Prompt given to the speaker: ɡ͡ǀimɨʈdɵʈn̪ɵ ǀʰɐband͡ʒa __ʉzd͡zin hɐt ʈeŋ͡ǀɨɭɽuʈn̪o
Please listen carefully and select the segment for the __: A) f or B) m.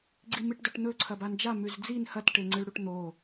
B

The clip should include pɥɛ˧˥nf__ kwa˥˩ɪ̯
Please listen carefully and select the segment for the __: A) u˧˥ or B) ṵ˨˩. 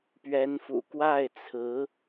B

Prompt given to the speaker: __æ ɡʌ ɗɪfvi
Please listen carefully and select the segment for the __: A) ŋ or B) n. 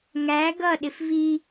A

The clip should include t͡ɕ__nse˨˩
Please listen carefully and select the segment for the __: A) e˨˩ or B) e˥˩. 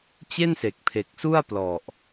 B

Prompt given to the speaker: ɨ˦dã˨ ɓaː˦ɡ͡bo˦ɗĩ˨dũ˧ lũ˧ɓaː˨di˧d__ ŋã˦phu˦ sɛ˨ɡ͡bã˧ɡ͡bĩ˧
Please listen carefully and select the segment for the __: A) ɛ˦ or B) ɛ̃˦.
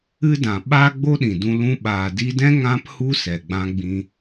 B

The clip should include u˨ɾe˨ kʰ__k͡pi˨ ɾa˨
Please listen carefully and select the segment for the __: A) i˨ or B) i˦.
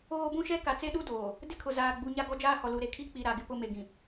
B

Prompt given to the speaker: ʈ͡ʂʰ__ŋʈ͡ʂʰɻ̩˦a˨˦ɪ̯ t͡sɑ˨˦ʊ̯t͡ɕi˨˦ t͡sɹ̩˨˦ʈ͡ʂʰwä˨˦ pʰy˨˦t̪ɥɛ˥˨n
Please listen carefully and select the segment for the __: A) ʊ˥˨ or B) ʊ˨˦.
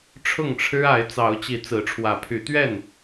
A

